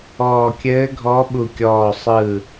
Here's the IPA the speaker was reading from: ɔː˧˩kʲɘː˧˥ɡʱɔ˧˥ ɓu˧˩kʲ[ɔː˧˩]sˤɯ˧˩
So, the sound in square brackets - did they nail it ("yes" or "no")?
yes